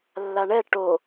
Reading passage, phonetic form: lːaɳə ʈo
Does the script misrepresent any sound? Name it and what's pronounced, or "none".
ə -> ɛ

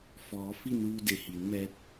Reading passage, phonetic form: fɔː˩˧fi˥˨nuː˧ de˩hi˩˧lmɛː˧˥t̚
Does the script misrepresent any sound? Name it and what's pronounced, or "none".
l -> n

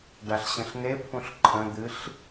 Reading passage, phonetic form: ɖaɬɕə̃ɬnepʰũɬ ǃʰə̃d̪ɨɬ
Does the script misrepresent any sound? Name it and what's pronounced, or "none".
none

